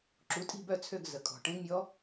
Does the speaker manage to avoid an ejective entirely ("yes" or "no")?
no